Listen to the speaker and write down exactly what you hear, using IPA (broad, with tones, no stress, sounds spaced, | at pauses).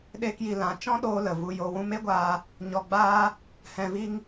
ɗ eː˦ k j i˧ l ã˨˦ t͡ʃ ɔ̃˦ ɗ oː˧ l ə˨ v u˧ j o˧ w ũ˦ m e˦ ɡʷ aː˧ | ɲ ɔ˧ ɡ͡b aː˦ | h ɛ̃˧ v i˦ ŋ